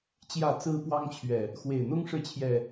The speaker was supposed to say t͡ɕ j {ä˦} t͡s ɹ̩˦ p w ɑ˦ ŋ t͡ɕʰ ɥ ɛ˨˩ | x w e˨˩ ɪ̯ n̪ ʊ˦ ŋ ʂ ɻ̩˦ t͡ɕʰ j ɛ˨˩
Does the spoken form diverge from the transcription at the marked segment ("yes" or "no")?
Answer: yes